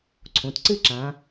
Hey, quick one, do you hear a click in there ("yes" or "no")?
yes